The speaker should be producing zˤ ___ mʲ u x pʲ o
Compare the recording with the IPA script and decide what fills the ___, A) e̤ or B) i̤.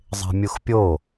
A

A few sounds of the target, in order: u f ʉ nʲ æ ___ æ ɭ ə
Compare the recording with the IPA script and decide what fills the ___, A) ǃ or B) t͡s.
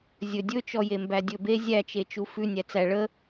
B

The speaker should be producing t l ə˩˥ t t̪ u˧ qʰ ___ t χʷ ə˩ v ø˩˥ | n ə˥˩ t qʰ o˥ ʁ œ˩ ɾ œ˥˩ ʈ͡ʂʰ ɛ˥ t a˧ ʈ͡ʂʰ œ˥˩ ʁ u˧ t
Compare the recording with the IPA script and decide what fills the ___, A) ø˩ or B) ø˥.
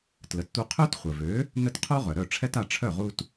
B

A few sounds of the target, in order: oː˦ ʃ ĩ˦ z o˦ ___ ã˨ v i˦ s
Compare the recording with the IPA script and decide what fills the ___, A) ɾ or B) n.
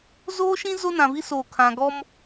B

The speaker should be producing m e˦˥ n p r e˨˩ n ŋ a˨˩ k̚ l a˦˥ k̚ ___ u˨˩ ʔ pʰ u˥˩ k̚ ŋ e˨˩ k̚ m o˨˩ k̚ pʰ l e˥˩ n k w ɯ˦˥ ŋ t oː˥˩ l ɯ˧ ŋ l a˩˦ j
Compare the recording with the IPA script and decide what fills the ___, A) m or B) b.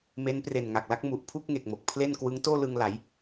A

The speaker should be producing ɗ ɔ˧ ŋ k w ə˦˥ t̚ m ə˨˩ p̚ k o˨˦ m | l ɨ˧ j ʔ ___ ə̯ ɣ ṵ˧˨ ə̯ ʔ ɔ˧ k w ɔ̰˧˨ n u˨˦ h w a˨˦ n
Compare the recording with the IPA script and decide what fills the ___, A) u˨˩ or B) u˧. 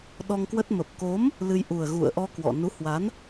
A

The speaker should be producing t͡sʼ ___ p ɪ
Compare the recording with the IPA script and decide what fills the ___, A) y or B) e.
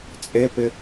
B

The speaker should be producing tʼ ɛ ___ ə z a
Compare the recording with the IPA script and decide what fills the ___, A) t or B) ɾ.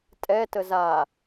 A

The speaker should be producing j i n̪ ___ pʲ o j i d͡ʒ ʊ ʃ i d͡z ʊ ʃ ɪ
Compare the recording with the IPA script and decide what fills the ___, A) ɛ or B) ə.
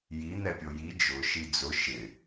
A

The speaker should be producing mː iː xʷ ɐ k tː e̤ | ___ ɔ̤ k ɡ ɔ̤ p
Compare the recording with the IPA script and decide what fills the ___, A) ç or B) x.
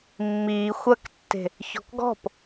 A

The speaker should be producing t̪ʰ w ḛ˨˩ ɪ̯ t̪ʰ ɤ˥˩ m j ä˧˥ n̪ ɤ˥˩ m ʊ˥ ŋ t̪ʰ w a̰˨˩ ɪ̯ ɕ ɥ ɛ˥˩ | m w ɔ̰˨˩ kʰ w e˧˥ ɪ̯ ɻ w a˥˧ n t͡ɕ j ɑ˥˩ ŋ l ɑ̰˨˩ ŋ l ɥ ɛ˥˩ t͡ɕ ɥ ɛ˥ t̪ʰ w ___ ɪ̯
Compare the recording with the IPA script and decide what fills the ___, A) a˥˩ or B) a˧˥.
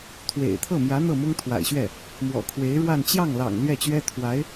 B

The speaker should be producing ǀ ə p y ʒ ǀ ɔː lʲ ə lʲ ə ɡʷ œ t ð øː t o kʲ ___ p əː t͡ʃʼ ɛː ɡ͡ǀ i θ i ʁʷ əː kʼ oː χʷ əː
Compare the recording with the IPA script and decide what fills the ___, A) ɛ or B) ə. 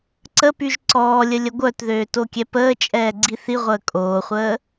A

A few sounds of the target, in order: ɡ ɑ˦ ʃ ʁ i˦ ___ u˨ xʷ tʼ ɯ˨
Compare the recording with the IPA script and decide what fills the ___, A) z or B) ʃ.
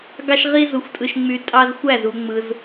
A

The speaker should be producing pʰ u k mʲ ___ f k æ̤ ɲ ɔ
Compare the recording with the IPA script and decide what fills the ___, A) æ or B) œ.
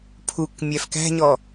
A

